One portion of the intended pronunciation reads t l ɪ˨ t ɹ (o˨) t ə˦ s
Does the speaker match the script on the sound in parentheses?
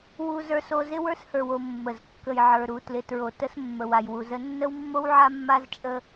yes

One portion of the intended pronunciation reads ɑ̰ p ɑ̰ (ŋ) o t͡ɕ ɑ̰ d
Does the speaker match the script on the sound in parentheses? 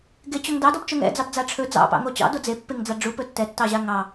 yes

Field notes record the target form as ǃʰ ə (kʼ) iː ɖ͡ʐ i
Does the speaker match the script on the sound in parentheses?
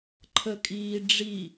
yes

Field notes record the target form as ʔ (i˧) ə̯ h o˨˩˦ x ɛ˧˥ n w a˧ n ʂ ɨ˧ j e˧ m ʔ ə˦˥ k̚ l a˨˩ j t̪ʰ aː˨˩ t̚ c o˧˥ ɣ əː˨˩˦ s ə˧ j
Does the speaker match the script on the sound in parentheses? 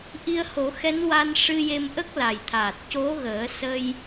yes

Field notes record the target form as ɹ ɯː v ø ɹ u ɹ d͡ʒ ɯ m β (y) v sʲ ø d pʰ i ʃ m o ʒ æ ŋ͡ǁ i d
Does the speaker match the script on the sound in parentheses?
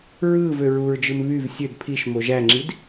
yes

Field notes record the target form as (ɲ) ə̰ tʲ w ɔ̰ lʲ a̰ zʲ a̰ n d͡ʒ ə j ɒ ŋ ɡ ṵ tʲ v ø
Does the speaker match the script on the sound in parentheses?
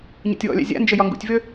yes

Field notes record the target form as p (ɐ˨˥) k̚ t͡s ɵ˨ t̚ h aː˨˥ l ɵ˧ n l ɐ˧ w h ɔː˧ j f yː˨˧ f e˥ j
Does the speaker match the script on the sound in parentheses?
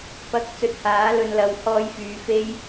yes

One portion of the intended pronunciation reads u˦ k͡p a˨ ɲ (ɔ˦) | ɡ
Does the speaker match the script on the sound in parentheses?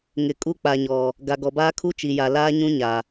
no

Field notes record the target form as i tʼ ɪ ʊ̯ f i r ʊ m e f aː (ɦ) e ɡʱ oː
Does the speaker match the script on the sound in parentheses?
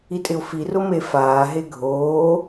yes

